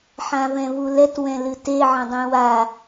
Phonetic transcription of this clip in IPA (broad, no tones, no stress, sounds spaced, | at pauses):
ħ ã v ɛ̃ v u l ɛ t w ɛ̃ l ɨ t e ʕ ɐ̃ dˤ ɛ̃ w a